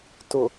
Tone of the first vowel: low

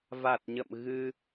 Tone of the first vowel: low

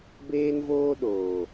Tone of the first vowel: high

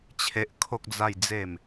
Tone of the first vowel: low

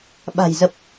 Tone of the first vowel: low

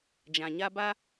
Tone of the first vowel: low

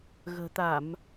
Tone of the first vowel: low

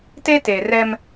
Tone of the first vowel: high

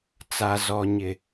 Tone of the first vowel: low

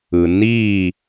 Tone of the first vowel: low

